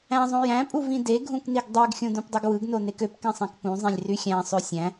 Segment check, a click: absent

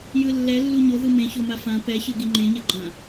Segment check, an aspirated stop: absent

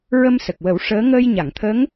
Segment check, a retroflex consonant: present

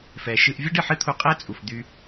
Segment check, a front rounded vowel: present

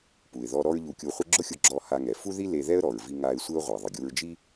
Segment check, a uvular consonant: present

